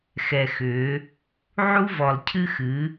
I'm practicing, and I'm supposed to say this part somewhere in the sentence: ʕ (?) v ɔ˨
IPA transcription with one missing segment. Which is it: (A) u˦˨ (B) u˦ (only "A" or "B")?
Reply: B